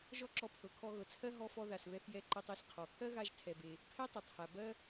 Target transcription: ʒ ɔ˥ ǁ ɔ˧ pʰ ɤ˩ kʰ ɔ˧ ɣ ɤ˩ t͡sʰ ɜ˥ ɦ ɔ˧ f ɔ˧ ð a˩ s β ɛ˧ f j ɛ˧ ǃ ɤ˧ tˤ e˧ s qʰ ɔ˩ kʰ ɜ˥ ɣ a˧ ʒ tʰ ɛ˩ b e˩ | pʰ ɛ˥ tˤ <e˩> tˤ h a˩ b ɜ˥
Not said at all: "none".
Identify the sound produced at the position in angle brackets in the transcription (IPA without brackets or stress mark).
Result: ɛ˩